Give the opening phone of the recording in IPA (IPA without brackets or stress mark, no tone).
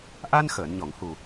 ʔ